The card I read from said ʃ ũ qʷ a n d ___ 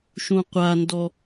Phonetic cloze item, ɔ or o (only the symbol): ɔ